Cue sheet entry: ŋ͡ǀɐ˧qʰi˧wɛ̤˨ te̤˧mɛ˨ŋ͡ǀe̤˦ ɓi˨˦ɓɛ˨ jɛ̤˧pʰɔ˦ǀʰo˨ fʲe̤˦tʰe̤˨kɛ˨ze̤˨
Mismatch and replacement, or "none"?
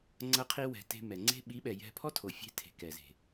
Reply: ǀʰ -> tʰ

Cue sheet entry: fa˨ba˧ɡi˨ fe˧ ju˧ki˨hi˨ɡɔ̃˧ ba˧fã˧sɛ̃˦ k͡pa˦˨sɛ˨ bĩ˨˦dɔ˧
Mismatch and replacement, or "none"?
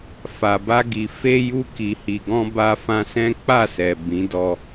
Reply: none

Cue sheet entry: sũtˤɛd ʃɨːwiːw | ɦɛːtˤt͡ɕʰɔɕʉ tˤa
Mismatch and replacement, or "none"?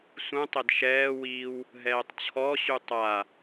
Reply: ɨː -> ɛː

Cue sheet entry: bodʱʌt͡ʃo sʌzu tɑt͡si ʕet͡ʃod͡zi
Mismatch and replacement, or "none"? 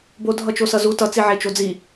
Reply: ɑ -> ʌ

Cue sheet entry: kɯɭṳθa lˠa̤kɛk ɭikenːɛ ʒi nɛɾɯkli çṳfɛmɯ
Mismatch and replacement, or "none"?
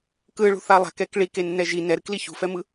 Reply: none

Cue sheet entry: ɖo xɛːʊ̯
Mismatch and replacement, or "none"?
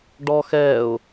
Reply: o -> ɔ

